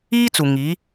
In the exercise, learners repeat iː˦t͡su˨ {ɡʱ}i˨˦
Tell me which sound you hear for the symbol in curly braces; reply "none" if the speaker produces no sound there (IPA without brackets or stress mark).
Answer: ŋ